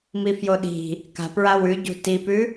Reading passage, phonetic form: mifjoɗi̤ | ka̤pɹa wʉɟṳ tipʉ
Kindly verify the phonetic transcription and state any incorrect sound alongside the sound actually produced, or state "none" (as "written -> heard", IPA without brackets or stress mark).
none